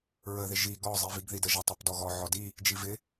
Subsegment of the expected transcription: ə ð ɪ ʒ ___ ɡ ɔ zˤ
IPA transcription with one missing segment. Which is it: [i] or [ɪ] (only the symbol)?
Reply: i